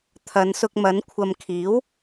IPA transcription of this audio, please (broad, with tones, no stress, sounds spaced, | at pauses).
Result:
t̪ʰ ɐ˨˧ n s ʊ˧ k̚ m ɐ˨˥ n kʷʰ ɐ˨ m kʰ iː˨˥ w